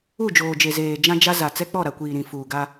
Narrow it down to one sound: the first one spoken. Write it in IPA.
u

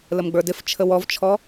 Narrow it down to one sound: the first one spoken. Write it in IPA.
l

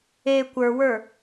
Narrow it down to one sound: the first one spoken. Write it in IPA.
e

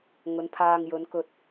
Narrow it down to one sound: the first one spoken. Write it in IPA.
ŋ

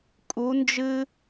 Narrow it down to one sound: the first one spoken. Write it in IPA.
kʼ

